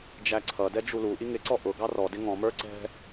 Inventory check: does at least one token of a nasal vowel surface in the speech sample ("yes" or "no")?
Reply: yes